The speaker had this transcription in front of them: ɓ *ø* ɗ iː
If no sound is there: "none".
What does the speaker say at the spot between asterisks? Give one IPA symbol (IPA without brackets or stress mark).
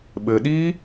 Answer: ɘ